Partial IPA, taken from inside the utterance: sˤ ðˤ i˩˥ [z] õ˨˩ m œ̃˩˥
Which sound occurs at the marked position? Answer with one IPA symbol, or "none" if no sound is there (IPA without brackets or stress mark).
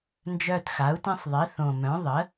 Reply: θ